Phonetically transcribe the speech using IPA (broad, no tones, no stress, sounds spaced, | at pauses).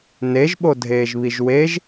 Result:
n e ʒ ɓ o dʱ eː ʒ β i ʒ w e ʒ